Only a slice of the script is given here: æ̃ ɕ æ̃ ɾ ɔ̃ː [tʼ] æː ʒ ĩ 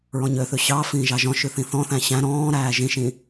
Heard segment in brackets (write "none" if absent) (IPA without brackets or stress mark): ɾ